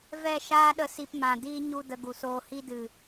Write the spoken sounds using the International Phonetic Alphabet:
v ɛ˦˨ ʃ aː˦ ɗ ə˧ s i˧ p m ã˨ d iː˦ ɲ u˧ d ə˧ ɡ u˨ s oː˧ h i˦ d ɨ˨

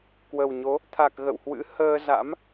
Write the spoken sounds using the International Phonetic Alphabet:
k w ə˨˩ w ɲ o˨˦ | t̪ʰ a˨˩ k̚ ɣ ə̰˧˨ w h w ɨ̰˧˥ h əː˧ z a̰˧˥ m

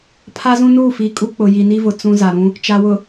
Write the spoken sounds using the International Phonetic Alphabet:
pʰ a˦ z ũ˦ n uː˦˨ f iː˨ kʼ u˦ k͡p ʊ˨ j i˨ n i˦ v ʊ˨ t͡s ũ˦ z a˨ ɾ ũ˦ | t͡ʃ a˨ w ʊ˨

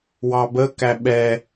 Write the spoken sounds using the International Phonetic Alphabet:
w ɑ b ə k æ ɓ ɛ

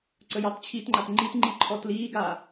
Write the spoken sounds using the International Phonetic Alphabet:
ǀ ə j ɑ t t͡ɕʰ i t ŋ͡ǃ a t ŋ͡ǃ i t ŋ͡ǃ i ǃʰ ɔ t l iː ɡ aː

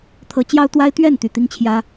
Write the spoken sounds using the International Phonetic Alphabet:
t̪ʰ ɤ˧˥ t͡ɕ j ɑ˥ ʊ̯ t̪ w a˥ ɪ̯ t̪ ɥ ɛ˥˩ n t̪ y˨˩ t̪ i˥ ŋ t͡ɕʰ j ä˥

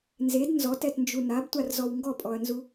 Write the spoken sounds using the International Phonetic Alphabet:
n z e d n z ɔ t ɛ t n d͡ʒ u n a b tʷ a r z ɔ w ŋ ɡ ɔ pʼ ɔ ɐ̯ n z u

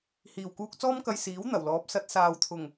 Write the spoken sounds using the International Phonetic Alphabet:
h iː˨ w k uː˧ k̚ t͡s ɔː˥ m k ɐ˧ j s iː˨˥ w n̪ ɐ˨˩ w l ɔː˨˥ p̚ s ɐ˨˥ t̚ s aː˨ w t̪ʰ ʊ˨˩ ŋ

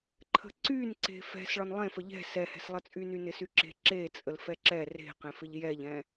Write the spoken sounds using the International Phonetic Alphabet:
ǃʰ ə̤ ǀ y n ǀ e̤ f ɛ̤ s ɭ ɒ n lˠ ẽ f ə ʎ ɛ̤ s ɛ h ɛ̤ s lˠ ə t͡sʼ y n y n ɪ s y ǁ e̤ ǁ e t͡sʼ ə l f ɛ ǁ ɛ r e̤ q ẽ f ɪ ʎ j ɛ ʎ ɛ̃

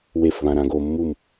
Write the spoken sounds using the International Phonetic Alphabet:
w e f β ã ɾ ã ɡ o mː u m

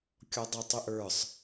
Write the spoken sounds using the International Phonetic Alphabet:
kʲ ɔ dˤ ɛ tˤ e ʔ ə˞ sˤ

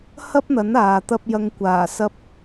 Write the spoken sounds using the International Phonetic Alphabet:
h ɐ˥ p̚ n̪ ɐ˨˥ n aː˨ t̪ ɐ˧ p̚ j ɐ˨ ŋ kʷ aː˨˩ s ɐ˧ p̚

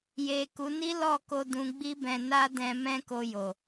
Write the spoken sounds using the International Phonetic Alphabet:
j e˨ k u˨˦ n i˦ l ɔ˦˨ k o˧ d ũ˧ ɡ͡b i˦ b ɛ̃˧ n a˦ d ɛ̃˧ m ɛ̃˦ k o˧ j o˨

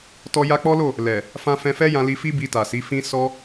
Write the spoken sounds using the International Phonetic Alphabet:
t ɔ˦ j a˧ k͡p ɔ˦ l o˦˨ | l ɛ˨ | f ã˧ f ɛ̃˧ f ɛ˦ j ã˧ l i˧ f i˦ b i˧ t a˨ s i˨˦ f ĩ˦ s ɔ˦

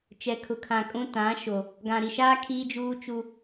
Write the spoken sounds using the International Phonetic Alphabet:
t͡ʃ ɛ˨ kʰ ʊ˨ kʰ ã˨ kʼ ũ˦ t ã˨˦ ʃ o˨ | ɡ ã˨ ɾ i˨ ʃ aː˦ kʰ iː˦ d͡ʒ uː˦ t͡ʃ u˦

